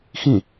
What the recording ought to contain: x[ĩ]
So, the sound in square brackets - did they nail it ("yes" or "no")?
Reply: yes